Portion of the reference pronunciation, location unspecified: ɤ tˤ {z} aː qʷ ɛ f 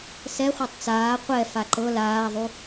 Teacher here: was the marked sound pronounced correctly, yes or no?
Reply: no